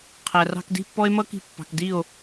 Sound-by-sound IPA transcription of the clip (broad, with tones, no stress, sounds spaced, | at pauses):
qʰ æ˨ r ɑ̤˧ k d i̤˦˨ pː ɔ˦ e̯ m ʌ˦ k i̤˧ pː ɑ̤˨ k d i˦˨ o̯